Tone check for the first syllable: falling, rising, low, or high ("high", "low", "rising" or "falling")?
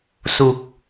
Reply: low